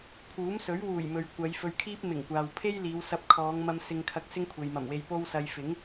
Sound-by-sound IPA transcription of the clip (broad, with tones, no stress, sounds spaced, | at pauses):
pʰ uː˨˥ m s ɵ˨˥ ɥ w uː˨˩ j m ɵ˨ ɥ kʷ ɐ˨˧ j f ɵ˧ ɥ kʰ iː˥ p̚ m ɪ˨˩ ŋ kʷ aː˨ w pʰ e˥ j l iː˨˧ w s ɐ˧ p̚ kʰ ɔː˨˧ ŋ m ɐ˧ m s ɪ˧ ŋ kʰ ɐ˧ k̚ s ɪ˥ ŋ kʷʰ e˨ j m ɐ˨˩ m w e˧ j p o˧ w s ɐ˨ j f ɪ˨˥ ŋ